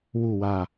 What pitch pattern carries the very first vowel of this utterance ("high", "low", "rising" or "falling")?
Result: falling